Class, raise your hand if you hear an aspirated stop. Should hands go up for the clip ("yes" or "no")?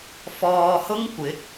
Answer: no